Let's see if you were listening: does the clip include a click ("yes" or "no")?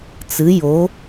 no